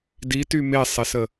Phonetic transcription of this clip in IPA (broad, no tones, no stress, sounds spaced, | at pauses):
d i t y m e sˤ e s ə